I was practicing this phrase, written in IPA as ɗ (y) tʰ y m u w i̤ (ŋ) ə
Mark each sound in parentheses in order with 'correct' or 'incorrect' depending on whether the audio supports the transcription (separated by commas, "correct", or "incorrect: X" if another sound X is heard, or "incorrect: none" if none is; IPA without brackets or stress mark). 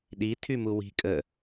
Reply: incorrect: i, incorrect: kʼ